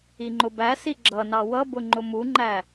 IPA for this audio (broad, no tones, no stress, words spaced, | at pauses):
iŋ͡ǃʊbæsi ɡ͡ǁʌnɑ wʌbʊ ŋ͡ǃʊmuŋ͡ǃæ